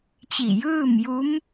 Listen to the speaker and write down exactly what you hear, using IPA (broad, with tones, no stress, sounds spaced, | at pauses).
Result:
t͡ɕ i˧˩ j ɯː˥˨ m j u˧˥ m